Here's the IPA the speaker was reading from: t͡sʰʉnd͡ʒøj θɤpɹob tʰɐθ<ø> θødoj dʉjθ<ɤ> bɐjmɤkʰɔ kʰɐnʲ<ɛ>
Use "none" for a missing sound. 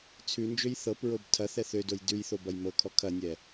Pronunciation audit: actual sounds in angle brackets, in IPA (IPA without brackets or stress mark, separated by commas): ɛ, o, ɛ